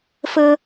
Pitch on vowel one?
high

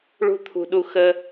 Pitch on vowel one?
high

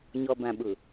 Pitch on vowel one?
low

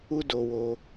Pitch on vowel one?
high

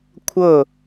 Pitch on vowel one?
falling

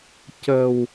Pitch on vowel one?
low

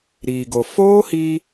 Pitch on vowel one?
low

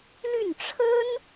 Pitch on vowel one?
falling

